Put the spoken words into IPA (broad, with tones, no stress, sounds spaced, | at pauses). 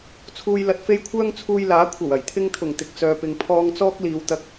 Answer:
t͡sʰ uː˨ j l ɐ˨ t̚ f e˧ j kʷʰ œː˥ ŋ t͡sʰ uː˧ j l aː˨˥ kʷʰ ɐ˨˩ w ɐ˨˩ j t̪ʰ ɪ˧ ŋ t̪ʰ ʊ˨˩ ŋ t̪ ɪ˨ k̚ t͡s œː˨ p ɪ˨ ŋ pʰ ɔː˧ ŋ t͡s ɔː˥ k̚ l iː˨˧ w t̪ ɐ˧ k̚